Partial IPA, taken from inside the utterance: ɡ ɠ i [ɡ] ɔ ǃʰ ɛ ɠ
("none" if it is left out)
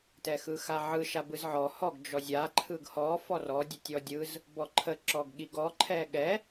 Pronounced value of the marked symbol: ɡ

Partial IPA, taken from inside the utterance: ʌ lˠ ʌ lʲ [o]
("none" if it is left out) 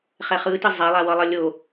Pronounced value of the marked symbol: o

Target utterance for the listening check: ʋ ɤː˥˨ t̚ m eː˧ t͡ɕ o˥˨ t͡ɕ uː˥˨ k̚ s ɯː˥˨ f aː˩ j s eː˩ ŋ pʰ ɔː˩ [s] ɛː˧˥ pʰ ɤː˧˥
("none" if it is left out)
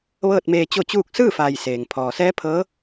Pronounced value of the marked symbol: s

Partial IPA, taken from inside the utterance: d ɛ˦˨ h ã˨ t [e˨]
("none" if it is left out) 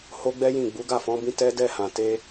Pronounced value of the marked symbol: e˧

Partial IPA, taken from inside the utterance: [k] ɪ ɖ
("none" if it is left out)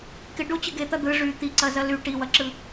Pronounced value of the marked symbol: k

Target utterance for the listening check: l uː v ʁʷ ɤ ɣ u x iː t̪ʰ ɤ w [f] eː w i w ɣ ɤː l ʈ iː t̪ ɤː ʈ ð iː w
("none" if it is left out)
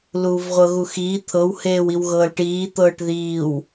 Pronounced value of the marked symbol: h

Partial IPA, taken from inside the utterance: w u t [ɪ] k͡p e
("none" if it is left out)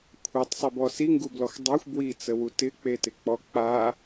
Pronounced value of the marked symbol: ɪ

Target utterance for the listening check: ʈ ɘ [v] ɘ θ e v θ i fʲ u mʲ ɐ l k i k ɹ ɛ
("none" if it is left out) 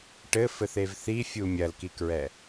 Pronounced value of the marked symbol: f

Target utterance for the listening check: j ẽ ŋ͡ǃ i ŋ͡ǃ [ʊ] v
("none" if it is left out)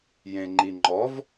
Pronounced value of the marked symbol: ɔ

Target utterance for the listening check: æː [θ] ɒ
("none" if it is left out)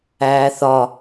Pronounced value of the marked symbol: θ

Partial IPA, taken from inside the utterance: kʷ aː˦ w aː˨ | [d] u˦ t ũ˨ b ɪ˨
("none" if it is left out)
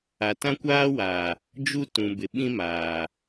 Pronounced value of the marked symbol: d͡ʒ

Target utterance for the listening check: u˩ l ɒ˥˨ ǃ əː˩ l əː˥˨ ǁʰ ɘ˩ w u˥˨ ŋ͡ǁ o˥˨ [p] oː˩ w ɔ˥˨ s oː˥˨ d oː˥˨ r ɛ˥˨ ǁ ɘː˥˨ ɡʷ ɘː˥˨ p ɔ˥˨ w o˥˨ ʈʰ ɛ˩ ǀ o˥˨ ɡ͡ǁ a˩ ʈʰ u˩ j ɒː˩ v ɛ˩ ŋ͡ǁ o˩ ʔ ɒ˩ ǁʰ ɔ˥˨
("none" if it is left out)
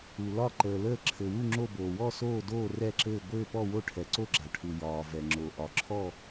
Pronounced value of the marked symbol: b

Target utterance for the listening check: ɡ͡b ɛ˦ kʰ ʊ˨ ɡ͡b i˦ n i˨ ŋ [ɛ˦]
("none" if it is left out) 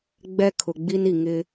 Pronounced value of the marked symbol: ɪ˦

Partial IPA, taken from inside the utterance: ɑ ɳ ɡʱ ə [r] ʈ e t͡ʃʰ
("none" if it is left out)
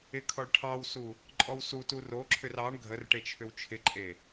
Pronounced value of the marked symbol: r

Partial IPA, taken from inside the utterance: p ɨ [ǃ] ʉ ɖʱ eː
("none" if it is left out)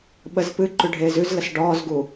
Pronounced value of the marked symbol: ǃ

